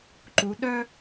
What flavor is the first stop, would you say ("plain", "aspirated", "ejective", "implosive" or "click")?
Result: click